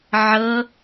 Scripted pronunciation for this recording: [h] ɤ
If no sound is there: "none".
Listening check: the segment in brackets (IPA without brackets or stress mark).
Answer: ʕ